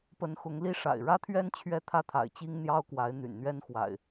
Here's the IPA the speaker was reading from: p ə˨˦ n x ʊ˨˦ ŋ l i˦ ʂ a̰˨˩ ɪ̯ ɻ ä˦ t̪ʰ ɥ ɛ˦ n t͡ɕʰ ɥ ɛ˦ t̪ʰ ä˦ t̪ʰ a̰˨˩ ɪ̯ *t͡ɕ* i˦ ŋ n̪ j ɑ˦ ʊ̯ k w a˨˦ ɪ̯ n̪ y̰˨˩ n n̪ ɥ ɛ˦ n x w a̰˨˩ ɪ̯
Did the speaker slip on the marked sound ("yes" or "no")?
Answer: no